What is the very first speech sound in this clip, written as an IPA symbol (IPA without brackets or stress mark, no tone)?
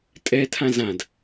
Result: tʼ